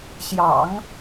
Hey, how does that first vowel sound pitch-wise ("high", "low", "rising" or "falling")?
low